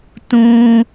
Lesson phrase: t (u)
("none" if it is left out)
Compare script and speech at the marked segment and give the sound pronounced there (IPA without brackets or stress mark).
ũ